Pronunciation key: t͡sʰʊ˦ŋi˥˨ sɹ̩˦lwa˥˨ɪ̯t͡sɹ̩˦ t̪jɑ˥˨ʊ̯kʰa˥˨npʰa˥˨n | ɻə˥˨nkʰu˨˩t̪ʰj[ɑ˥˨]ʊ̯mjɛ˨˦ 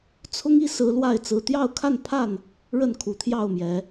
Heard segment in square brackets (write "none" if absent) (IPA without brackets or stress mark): ɑ˥˨